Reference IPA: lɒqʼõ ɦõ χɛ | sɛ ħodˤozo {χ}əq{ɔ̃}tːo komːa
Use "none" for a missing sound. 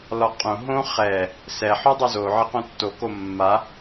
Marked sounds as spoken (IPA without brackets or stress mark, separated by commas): ʕ, õ